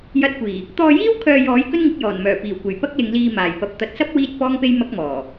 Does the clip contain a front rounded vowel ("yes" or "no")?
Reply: yes